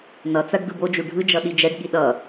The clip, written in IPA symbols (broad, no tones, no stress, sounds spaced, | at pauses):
n ʌ t͡s a ɖ d ɯ b o d͡ʒ u ɖʱ ɯ d͡ʒ ʌ ɗ i d͡ʒ ɛ ɖ ɠ i ɗ ʌ